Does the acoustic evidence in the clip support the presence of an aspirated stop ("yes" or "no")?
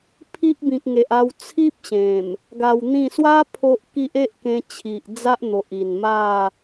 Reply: yes